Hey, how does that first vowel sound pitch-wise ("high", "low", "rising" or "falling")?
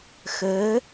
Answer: rising